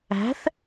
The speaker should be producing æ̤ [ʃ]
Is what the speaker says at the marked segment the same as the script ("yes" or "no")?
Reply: no